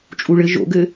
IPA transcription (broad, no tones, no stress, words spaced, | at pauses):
t͡ʃʼuɭɘ ʒo̰ɡɘ